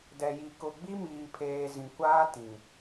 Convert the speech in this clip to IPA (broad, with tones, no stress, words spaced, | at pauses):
dɛ˨ji˨ kʊ˨ɡ͡bi˦miː˨ pʰeː˨ zĩ˨ kʷaː˦tĩ˨